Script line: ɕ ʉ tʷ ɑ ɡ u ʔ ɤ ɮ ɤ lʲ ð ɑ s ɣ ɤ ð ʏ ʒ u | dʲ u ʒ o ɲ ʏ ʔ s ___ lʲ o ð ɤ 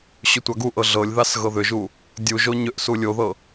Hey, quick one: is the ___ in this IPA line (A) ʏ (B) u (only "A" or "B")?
B